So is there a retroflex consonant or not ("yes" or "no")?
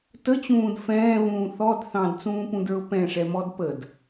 yes